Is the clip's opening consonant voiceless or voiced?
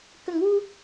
voiceless